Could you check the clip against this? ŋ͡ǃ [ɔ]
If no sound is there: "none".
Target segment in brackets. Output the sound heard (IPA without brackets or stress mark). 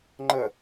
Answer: ə